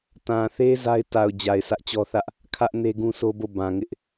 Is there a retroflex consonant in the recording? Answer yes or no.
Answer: no